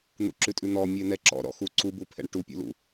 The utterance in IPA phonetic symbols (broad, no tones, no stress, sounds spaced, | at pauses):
n̪ ṵ ǁ ʉ tʼ ʉ n̪ ɔ mʲ ɛ n̪ ɛ ǁ ɔ̰ ɾ ɔ̰ x u ǀ u b u pʰ ɛ̰ ɳ ʈ u pʲ ṵ l ṵ